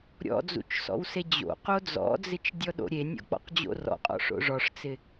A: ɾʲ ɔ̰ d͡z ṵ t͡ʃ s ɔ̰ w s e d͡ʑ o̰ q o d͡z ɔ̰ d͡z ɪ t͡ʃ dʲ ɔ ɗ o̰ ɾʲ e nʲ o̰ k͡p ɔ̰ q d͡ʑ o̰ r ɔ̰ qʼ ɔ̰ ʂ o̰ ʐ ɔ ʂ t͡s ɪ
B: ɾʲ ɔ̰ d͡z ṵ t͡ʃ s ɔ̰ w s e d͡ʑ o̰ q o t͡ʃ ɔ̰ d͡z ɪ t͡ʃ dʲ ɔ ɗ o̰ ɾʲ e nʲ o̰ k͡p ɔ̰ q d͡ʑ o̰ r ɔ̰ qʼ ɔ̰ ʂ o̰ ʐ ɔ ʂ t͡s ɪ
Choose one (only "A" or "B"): A